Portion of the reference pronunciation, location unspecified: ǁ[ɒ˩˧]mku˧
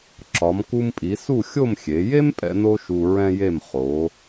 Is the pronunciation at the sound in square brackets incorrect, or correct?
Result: correct